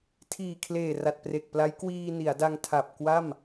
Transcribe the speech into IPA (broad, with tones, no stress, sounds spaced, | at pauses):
tʰ iː˨˩ kʰ l eː˨˩ r a˨˩ t̚ p r e˨˩ k̚ p l a˦˥ j k w iː˧ n i˩˦ a̯ d a˧ ŋ tʰ a˨˩ p̚ k w a˥˩ m